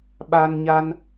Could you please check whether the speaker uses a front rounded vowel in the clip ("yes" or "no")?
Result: no